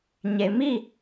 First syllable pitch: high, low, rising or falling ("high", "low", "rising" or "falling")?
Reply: low